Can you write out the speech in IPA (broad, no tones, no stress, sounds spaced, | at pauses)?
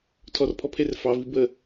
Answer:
tʰ ɔ r pʰ ɔ pʰ e r f ɑ v i b ə